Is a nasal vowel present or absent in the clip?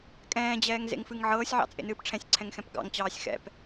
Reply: present